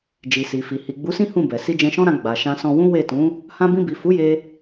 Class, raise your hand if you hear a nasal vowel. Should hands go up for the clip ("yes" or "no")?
yes